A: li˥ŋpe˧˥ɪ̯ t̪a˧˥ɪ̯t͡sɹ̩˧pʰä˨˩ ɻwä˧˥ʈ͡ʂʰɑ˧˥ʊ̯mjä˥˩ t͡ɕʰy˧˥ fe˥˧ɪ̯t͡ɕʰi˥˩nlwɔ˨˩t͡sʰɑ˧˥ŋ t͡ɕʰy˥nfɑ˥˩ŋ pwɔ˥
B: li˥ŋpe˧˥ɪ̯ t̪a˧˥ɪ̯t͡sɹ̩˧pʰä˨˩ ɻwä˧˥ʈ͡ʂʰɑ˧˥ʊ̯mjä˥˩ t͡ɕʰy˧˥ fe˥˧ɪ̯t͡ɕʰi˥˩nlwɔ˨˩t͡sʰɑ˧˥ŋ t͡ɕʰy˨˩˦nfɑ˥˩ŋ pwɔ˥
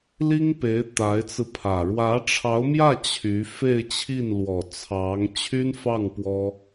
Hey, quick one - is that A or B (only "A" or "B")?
A